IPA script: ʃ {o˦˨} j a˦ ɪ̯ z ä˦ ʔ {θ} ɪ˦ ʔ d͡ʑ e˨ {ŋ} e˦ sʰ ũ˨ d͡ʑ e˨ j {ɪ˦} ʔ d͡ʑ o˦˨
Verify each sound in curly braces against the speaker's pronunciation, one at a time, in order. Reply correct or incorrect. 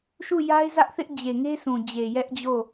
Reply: incorrect: u˦˨, correct, correct, incorrect: ɛ˦

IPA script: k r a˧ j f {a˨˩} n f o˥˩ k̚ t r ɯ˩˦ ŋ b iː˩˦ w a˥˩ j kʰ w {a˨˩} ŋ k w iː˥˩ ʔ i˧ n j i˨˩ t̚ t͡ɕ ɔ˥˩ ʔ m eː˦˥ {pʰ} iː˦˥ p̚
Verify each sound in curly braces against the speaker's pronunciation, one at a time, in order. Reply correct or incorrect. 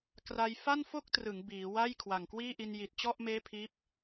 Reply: incorrect: a˥˩, correct, correct

